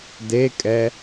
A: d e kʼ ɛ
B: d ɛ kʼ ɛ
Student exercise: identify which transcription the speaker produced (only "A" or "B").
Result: A